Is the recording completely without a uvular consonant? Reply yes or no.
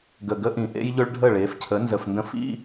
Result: yes